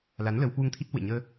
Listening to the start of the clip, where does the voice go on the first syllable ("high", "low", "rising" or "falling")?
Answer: rising